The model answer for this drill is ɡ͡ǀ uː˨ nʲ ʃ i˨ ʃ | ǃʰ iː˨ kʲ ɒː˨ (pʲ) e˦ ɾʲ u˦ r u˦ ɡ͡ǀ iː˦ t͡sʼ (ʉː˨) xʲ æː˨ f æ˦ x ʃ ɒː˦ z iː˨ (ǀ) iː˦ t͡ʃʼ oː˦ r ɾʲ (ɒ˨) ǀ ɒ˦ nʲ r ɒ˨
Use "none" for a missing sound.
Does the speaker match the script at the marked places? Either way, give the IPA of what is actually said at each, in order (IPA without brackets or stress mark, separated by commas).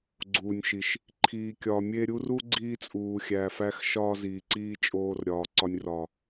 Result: mʲ, uː˨, ǀ, ɒː˨